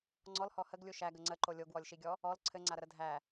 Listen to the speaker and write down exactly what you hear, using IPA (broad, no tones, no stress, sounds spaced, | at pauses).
ŋ͡ǀ ɔ l h ɔ h ə ɡ lʲ u ʃ æ ɡ ə ŋ͡ǀ ə ǃ o lʲ o ɡ w ɔ lʲ ʃ i ɡʲ ɔ | ɔ l ǀʰ ɘ ŋ͡ǀ a ɾ ə ɾ ə dʱ æ